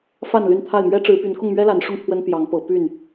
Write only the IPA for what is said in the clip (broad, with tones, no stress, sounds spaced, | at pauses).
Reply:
f a˥˨ n l y˥˨ n t̪ʰ a˥˨ ɪ̯ m ɥ ɛ˦ ʈ͡ʂ ɻ̩˨˦ p y˨˦ n k ʊ˥˨ ŋ m ɥ ɛ˦ l a˨˦ n ʂ ʊ˥˨ ŋ t̪ʰ w ə˦ n p j ɑ˨˦ ŋ p ɤ˨˦ p y˥˨ n